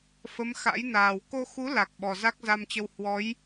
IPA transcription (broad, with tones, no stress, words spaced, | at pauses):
fə˨˦m xa̰˧˥jnaː˨˩w ko˧xu˨˦ la˨˩k̚ ɓɔ˨˩za˦˥k̚za˧mt͡ɕə˧w hwɔ˨˦j